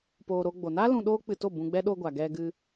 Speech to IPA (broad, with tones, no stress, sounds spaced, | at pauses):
p oː˧ ɾ o˦ ɡ͡b o˧ n a˦ l ũ˧ ɗ oː˦ k͡p ɨ˧ t o˦˨ b ũ˧ ɡ͡b ɛ˦ ɗ o˧ ɡʷ a˨ ɡ ɛ˧ ɡ ɨ˧